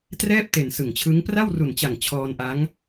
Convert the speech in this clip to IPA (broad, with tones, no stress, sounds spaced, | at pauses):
t r ɛː˥˩ p̚ t e˨˩ n s ɯ˨˩ ŋ t͡ɕʰ ɯ˦˥ ŋ p r a˥˩ w r u˨˩ n t͡ɕ a˨˩ ŋ t͡ɕʰ ɔː˧ n ʔ a˦˥ ŋ